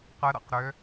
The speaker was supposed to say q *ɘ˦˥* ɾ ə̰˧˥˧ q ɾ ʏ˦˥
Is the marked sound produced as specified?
yes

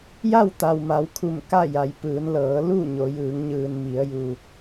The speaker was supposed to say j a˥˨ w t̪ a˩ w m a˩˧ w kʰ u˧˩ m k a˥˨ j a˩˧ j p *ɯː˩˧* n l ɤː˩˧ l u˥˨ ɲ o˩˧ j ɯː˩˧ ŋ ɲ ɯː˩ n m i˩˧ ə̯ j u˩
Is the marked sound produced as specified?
yes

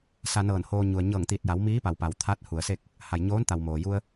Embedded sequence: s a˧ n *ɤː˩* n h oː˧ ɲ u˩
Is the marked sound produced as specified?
no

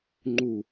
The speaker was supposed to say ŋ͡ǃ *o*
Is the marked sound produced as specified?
no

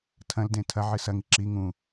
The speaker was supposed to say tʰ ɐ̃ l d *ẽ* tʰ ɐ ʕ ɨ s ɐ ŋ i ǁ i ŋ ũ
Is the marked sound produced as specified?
yes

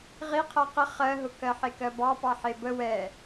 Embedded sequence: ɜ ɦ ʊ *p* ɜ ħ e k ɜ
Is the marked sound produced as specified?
no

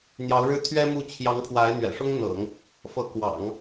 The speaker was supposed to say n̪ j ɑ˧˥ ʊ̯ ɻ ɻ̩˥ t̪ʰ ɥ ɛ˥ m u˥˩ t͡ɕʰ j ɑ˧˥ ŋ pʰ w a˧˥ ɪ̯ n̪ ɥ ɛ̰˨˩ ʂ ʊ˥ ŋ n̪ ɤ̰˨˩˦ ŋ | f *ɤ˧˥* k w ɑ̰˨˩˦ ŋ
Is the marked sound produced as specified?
yes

